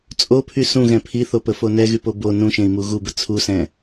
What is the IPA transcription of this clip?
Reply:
t͡sʼ o pʰ y s ũ ɣ ɛ̃ pʰ i θ o p ə f o n ɛ ɣ y p o b o n ũ ʃ ẽ i̯ m u ɣ u b ə t͡sʰ u s ɛ̃

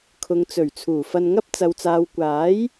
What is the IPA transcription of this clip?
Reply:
kʰ ʊ˨ ŋ t͡s ɵ˨˩ ɥ t͡sʰ uː˨˩ f ɐ˧ n ŋ ɐ˥ p̚ t͡s ɐ˨ w t͡s aː˨ w kʷ aː˨˥ j

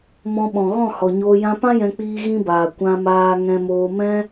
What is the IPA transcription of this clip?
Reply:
m ɔ̃˧ ɓ ɔ̃˨ ɣ ɔ̃˦˨ h ɔ˨ ɲ oː˧ j ã˧ p ã˦ j ɛ̃˧ k͡p iː˧ ɣ ĩ˧ b aː˨ kʷ ã˧ m aː˧ ŋ ɛ̃˧ m oː˧ m ɛ̃˦

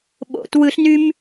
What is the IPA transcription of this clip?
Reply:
ɓ o̰ t w ɯ ɬ n y m

